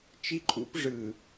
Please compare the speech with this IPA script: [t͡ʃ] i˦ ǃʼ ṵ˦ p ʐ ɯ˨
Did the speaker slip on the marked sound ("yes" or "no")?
no